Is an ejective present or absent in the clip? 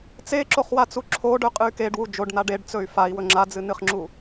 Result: present